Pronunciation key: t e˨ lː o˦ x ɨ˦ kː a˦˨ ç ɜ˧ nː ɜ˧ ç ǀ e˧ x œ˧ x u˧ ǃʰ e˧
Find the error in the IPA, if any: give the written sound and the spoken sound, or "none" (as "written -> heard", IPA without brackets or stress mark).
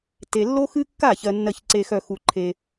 none